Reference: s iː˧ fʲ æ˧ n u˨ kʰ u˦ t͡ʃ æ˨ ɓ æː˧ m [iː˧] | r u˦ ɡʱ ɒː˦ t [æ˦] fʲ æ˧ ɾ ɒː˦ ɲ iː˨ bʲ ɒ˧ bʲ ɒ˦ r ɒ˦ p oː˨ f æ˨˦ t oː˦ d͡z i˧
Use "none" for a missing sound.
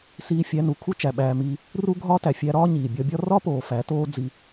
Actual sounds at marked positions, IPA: iː˦, æ˨

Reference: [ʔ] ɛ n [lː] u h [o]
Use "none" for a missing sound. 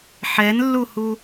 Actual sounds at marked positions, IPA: ħ, lː, u

